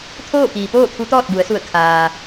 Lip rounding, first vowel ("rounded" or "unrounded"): rounded